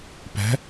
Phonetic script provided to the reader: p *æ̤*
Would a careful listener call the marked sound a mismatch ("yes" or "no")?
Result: no